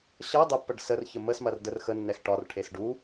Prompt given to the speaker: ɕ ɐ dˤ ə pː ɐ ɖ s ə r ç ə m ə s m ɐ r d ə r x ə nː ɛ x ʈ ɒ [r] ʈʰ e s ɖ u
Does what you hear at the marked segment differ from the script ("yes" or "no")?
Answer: no